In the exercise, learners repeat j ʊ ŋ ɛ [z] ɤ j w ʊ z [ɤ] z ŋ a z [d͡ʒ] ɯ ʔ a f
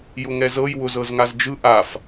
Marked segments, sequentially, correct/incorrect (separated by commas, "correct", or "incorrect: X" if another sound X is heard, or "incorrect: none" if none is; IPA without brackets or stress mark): correct, correct, correct